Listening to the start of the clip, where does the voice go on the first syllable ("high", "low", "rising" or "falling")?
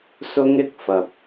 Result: high